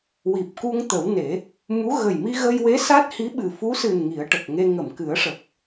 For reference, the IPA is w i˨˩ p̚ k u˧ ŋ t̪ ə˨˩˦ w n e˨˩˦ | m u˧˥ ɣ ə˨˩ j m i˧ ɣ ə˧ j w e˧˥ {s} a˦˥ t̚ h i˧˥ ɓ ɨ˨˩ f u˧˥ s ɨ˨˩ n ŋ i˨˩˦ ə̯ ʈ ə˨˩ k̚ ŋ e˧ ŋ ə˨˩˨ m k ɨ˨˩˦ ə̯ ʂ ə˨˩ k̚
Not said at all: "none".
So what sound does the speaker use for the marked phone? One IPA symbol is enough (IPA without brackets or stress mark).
s